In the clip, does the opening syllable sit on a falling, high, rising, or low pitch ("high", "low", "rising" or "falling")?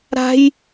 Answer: high